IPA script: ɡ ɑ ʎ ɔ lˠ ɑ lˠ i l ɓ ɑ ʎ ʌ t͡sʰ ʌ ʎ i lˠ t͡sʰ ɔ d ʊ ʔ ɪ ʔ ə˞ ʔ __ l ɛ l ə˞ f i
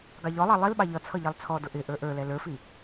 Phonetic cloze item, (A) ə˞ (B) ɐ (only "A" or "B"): A